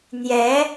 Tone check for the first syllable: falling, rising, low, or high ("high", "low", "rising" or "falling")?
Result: rising